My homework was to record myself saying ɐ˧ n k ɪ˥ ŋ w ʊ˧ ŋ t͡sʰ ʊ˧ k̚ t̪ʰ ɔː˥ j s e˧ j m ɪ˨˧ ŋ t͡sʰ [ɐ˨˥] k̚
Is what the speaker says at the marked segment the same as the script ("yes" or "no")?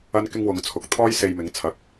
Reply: yes